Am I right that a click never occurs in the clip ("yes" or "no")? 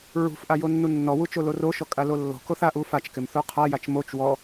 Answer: yes